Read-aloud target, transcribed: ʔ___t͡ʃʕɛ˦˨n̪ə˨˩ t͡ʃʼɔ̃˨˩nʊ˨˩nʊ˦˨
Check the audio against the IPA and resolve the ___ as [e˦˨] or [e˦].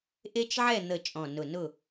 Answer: e˦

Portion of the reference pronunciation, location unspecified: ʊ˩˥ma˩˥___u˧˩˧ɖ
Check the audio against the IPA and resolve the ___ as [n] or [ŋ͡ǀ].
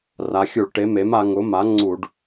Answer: ŋ͡ǀ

